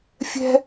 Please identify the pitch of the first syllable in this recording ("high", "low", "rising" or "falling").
high